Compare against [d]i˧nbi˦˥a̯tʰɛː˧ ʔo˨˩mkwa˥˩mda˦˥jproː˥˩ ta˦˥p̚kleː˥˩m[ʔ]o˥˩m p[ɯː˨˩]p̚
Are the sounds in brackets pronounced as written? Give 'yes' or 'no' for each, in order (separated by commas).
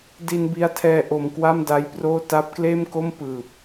yes, no, yes